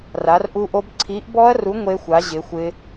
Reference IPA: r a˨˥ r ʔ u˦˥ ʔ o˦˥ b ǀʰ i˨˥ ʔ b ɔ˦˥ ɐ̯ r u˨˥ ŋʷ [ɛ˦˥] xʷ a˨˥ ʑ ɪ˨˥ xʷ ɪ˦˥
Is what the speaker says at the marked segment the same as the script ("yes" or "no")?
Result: no